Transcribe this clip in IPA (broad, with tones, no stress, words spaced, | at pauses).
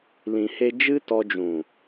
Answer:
lĩ˧he˦ d͡ʒɨ˦tɔ˧d͡ʒũ˨